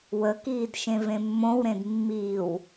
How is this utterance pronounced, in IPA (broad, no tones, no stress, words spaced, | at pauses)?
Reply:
wəkiːdʃẽvẽ mːõwɾẽd mːiːw